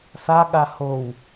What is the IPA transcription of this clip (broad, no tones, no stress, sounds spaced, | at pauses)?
θ a ɠ a h o w